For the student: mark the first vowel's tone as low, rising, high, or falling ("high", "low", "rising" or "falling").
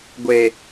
low